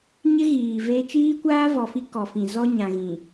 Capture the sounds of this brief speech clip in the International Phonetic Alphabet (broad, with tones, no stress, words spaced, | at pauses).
ɲɪ˦ɣiː˨ ve˦ t͡ʃiː˦kʷaː˦vɔ˨fi˦ kɔ˨fĩ˨ zɔ˦ɲã˨ɣĩ˨